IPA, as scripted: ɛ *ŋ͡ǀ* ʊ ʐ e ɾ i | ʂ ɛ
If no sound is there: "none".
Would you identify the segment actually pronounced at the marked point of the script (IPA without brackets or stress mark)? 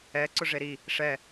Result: ǀ